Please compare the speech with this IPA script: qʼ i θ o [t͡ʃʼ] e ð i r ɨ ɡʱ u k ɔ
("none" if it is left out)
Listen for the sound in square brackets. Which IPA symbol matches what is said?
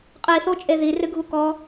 t͡ʃʼ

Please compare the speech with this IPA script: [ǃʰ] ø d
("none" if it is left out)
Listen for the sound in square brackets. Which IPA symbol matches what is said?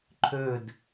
ǃʰ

